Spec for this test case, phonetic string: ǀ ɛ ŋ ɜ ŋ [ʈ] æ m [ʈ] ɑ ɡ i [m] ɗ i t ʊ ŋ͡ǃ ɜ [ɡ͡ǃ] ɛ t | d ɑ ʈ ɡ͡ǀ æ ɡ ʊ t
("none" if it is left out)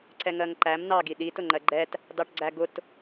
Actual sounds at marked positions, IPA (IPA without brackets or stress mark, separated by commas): ǃ, n, none, ɡ͡ǃ